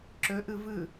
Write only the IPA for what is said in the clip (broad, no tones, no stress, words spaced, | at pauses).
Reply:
ǁɵʔɯ vɯ